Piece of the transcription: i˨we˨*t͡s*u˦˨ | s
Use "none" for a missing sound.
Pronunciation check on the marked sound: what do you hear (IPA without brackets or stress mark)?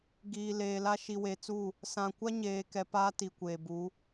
t͡s